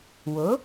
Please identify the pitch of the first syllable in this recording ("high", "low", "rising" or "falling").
rising